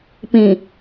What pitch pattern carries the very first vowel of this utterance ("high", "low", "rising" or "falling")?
low